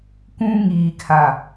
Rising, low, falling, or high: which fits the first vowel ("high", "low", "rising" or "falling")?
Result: high